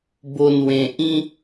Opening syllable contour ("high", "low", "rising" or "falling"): low